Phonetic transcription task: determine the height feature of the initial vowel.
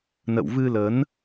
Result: mid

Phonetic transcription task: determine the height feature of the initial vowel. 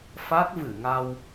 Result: low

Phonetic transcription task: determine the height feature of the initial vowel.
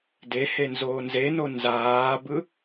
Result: mid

